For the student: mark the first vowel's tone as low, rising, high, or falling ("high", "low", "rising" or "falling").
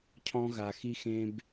high